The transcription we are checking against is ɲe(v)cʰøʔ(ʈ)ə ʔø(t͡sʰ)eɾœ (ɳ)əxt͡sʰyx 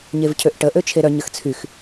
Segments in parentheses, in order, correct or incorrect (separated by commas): correct, correct, incorrect, incorrect